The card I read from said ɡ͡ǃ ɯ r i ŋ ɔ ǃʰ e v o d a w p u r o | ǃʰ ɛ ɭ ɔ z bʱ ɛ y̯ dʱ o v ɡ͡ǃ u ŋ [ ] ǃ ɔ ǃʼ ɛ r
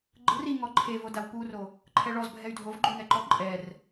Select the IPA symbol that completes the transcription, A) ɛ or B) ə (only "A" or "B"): A